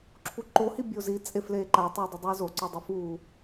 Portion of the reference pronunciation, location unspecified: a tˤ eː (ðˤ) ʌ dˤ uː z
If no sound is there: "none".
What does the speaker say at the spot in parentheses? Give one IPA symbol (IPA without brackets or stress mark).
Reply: dˤ